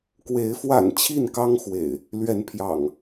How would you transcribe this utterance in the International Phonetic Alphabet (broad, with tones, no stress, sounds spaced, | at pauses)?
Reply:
k w e˨˦ ɪ̯ f w a̰˨˩ n t͡ɕʰ i˥˨ n k ɑ˦ ŋ x w ḛ˨˩ ɪ̯ | l ɥ ɛ˨˦ n pʰ j ɑ̰˨˩ ŋ